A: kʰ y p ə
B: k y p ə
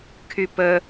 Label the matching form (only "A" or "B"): A